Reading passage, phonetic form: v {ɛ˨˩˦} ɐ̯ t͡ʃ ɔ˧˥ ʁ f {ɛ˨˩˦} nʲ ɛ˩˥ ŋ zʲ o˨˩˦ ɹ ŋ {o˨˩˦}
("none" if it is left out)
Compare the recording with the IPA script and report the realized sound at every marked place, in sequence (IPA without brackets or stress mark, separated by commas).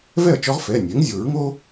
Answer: ɛ˥˨, ɛ˩˧˩, o˥